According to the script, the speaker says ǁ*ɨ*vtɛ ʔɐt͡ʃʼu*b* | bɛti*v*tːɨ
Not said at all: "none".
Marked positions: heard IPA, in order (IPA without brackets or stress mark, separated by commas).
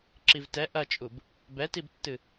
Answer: i, b, b